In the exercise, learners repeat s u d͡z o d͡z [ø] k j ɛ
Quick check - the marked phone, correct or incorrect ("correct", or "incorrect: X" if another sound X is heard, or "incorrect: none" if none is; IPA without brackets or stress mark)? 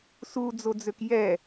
correct